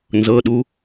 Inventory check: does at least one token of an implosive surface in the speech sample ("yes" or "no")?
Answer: yes